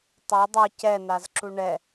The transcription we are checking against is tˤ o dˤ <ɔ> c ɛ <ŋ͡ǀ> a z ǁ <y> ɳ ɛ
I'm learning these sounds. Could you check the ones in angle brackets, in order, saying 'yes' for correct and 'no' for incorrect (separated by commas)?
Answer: no, no, no